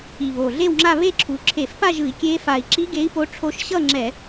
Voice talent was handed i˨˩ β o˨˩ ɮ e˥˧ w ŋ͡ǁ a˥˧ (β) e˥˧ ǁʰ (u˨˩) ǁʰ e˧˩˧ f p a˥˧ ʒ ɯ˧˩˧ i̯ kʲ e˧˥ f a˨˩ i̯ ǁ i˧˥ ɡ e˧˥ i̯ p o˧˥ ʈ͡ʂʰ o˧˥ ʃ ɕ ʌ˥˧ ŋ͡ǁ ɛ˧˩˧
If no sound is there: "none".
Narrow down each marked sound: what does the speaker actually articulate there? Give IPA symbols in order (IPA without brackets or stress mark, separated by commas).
β, u˨˩